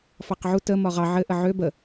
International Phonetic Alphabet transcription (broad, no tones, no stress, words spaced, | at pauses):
fɑqʕu tə mɒʁɑ ʕɘʔə ʕø bə